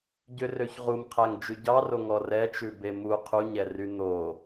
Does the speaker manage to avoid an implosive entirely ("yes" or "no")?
yes